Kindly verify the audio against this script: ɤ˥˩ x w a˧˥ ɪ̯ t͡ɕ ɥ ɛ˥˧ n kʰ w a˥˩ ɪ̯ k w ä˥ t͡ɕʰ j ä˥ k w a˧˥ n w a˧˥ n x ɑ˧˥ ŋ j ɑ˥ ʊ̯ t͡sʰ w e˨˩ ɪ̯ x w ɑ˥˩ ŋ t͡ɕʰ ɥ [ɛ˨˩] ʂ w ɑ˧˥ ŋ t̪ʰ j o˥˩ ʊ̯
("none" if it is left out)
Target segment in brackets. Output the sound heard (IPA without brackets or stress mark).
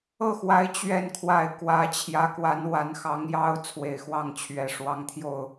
ɛ˨˩